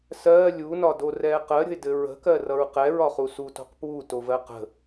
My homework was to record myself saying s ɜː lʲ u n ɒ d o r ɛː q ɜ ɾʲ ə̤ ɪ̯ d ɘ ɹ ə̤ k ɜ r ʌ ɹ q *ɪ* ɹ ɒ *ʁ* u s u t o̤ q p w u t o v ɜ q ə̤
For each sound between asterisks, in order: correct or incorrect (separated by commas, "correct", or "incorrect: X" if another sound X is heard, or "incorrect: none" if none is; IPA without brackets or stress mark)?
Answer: incorrect: ɛ, incorrect: χ